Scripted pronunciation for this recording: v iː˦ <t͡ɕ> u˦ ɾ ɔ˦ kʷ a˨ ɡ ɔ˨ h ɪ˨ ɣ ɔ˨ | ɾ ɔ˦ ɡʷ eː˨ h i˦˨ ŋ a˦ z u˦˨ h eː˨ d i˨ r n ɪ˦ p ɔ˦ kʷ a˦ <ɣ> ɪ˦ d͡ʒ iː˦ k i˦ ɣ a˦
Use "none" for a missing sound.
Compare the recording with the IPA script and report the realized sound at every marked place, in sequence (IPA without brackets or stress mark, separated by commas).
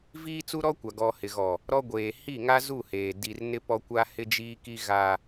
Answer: t͡s, h